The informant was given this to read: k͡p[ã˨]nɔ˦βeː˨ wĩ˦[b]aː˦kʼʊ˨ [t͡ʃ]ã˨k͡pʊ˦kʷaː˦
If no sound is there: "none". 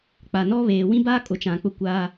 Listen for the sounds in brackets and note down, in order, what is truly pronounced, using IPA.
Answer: a˨, b, t͡ʃ

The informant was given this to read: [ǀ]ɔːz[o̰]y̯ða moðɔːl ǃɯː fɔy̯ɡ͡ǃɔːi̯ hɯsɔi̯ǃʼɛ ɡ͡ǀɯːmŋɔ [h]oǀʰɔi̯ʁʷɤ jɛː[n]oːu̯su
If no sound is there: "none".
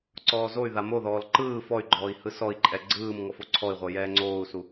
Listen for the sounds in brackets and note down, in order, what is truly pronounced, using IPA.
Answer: ǀ, o, f, ŋ͡ǀ

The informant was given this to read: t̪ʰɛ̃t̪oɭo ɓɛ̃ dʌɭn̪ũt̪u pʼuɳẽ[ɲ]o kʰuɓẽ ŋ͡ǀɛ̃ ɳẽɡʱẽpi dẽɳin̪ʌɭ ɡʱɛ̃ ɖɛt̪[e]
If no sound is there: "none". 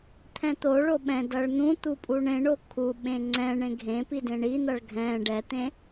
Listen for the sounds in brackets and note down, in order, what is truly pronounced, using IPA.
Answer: ɳ, ẽ

